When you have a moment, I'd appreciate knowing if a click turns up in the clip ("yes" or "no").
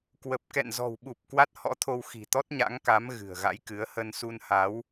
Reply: no